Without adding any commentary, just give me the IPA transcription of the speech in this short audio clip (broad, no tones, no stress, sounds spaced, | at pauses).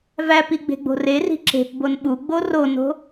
v æ p i ɡ͡b e̤ ɡ͡b o̤ r e r i̤ ǁ e̤ p b o n ɓ u ɡ͡b o r o n o̤